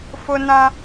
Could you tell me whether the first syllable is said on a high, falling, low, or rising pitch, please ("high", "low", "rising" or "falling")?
high